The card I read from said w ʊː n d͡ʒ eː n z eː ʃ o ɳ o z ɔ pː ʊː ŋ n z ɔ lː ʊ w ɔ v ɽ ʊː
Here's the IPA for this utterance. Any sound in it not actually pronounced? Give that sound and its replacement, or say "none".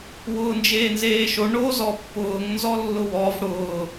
none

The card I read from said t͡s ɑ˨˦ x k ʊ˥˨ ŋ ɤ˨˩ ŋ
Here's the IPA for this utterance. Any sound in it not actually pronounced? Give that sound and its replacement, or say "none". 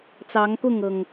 x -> ŋ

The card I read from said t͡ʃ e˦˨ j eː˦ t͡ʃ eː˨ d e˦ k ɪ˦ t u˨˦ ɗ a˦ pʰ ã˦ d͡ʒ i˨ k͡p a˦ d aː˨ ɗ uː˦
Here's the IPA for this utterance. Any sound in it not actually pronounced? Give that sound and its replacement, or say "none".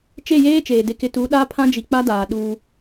none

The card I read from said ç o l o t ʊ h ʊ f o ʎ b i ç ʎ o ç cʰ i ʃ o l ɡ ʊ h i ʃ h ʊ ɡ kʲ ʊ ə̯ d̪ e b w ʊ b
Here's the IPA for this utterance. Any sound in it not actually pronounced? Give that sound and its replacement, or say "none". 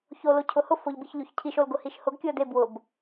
t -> cʰ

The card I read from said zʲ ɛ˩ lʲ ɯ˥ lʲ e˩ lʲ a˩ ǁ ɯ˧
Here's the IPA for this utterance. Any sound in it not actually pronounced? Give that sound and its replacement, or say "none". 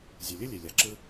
none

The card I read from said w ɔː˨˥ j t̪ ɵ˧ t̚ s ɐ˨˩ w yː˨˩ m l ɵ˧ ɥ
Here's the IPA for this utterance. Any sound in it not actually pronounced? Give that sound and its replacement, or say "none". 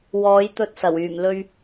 none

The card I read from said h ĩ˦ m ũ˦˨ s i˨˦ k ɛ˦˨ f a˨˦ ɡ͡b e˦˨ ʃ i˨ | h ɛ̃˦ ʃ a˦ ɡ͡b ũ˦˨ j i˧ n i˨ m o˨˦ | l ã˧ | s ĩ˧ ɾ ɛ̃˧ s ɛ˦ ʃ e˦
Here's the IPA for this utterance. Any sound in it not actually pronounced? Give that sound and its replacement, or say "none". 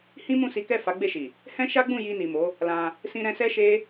none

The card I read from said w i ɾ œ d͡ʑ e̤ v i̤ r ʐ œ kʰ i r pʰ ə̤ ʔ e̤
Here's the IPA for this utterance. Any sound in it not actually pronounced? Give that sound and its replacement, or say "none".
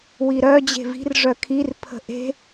none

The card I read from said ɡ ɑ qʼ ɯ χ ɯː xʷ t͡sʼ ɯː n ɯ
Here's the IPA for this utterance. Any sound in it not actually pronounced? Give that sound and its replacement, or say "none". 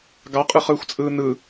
none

